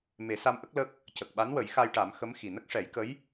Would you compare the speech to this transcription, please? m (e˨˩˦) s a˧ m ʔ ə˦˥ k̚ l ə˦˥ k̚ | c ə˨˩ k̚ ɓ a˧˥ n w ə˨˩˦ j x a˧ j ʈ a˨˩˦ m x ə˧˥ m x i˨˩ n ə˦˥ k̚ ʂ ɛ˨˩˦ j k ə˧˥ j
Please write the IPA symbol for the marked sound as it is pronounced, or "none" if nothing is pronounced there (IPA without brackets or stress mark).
e˨˩˦